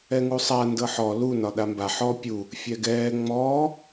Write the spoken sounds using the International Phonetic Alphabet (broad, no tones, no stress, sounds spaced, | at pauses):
ɛ ŋ u sˤ a n d ɤ ħ ɔ l u n ɒ ɗ a m b a ħ ɔ pʲ u | fʲ ɛ ɡ ɛː ŋ͡m ɔː